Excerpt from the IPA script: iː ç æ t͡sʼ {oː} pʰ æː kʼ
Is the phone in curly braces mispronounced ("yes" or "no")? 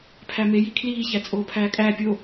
no